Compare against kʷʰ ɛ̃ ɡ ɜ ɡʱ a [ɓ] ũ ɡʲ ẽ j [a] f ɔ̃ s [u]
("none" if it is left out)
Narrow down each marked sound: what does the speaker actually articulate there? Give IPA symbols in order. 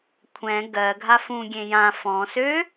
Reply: f, ã, ø

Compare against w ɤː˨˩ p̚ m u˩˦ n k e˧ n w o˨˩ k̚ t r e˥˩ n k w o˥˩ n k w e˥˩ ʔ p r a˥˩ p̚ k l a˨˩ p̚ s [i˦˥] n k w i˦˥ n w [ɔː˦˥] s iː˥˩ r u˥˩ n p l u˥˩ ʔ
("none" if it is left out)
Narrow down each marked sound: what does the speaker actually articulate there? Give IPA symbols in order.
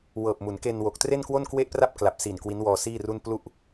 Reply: i˨˩, ɔː˧

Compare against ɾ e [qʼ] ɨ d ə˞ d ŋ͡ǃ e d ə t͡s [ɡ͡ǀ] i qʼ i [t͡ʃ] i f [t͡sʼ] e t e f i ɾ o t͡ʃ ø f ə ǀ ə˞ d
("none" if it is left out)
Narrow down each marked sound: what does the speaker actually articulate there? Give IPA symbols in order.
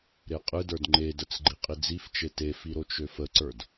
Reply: qʼ, ɡ͡ǃ, d͡z, t͡ʃ

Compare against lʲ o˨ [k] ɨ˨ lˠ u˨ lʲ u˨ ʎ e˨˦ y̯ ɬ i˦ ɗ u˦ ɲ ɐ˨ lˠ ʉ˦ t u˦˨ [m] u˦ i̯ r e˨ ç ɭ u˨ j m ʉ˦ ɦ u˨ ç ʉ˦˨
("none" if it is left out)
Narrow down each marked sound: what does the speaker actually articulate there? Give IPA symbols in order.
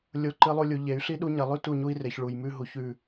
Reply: ǃ, ɲ

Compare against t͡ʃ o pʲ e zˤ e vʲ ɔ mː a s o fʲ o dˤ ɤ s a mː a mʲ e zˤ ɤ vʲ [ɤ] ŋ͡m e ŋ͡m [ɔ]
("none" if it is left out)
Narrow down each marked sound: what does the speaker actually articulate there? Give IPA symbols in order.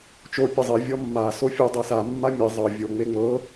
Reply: o, ɤ

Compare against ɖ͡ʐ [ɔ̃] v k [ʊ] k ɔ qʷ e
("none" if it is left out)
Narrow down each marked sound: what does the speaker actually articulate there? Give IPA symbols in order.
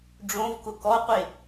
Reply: õ, ʊ

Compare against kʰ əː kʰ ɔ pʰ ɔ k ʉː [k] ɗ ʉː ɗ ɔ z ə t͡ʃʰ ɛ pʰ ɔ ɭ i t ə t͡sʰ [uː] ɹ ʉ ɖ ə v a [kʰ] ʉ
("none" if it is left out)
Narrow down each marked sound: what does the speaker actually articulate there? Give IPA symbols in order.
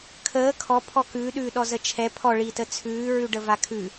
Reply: none, ʉː, kʰ

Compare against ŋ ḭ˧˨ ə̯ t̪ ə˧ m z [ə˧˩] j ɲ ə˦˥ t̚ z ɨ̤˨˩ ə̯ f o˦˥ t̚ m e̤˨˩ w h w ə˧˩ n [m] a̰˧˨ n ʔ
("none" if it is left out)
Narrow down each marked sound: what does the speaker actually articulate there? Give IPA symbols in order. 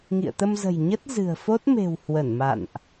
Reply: ə̤˨˩, m

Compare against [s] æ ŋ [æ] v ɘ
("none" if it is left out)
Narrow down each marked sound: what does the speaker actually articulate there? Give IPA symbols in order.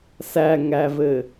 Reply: s, æ

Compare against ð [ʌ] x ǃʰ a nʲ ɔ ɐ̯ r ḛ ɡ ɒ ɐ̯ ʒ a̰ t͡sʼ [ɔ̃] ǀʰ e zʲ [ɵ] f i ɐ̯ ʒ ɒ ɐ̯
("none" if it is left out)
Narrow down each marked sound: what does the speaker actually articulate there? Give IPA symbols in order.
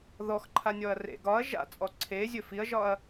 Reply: ɔ, ɔ, ɵ

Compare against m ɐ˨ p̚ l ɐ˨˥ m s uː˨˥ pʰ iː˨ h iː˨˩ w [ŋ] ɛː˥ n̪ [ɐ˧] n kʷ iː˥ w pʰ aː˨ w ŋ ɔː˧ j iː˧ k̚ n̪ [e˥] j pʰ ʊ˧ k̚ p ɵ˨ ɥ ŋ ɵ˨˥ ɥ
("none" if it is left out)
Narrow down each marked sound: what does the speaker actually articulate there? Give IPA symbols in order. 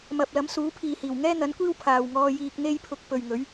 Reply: ŋ, ɐ˨˥, e˥

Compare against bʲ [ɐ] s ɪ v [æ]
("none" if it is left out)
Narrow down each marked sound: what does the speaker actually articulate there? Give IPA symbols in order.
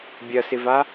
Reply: ɐ, a

